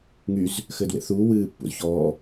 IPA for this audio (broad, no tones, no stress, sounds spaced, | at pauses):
ŋ y z | x ɘː d w ḛ θ uː w ɨː pː ṵ z ç ɔː